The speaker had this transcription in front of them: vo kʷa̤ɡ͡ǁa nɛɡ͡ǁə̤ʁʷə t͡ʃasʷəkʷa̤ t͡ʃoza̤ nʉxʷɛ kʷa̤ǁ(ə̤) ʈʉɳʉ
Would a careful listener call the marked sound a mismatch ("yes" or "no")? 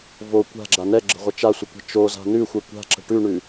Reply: no